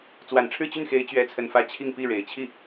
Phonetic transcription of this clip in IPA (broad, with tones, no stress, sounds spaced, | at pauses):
t͡s w a˨˩ n ʈ͡ʂʰ ɻ̩˥˧ t͡ɕ y˥˩ n x e˧˥ ɪ̯ t͡ɕ ɥ ɛ˧˥ t͡sʰ ə˨˩ n f ä˧˥ t͡ɕʰ i˥˧ ŋ p i˥˩ ɻ e˨˩ ɪ̯ t͡ɕʰ i˥˩